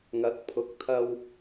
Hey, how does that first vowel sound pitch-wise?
rising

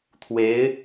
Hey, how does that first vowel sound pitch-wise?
rising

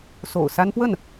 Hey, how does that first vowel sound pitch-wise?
low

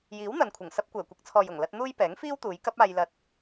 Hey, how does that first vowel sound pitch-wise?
rising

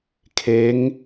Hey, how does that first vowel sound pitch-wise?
rising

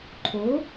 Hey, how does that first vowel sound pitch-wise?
rising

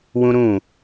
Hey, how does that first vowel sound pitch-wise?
high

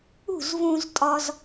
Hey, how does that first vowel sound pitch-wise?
falling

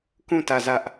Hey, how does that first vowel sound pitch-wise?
falling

